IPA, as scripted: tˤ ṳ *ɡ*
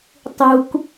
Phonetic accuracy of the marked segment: incorrect: k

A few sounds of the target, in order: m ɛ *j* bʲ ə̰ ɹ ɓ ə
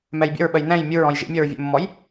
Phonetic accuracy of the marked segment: correct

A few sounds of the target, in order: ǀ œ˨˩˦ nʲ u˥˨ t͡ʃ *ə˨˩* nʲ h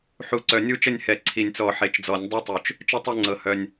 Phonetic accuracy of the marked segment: incorrect: ə˥˨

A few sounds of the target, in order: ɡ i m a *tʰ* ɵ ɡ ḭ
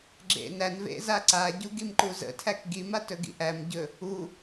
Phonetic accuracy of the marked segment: incorrect: t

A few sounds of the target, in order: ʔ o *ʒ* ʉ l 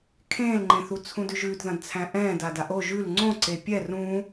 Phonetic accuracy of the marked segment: correct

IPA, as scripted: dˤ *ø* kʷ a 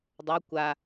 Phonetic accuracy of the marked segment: correct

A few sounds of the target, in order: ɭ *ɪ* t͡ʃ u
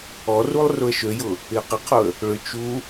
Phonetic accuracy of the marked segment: incorrect: ʏ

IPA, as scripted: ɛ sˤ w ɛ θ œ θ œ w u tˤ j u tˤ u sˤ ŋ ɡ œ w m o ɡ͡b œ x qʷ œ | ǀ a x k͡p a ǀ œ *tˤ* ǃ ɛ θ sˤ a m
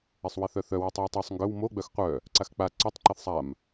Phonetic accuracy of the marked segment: correct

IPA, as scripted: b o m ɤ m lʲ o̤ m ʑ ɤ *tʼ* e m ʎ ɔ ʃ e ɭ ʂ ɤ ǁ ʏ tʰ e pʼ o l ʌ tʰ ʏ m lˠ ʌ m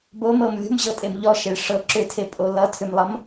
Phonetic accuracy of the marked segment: correct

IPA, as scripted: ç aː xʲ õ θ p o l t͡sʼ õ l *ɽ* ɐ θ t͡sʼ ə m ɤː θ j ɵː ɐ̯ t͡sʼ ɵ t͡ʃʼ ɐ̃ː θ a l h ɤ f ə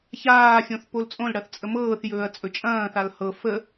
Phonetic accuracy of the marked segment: correct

